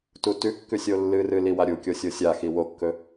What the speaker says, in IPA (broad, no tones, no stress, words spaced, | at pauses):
tutʉkːʉsʲ olːɨrɨ liwaɾʲukʲo sʲosʲaxi wokːɵ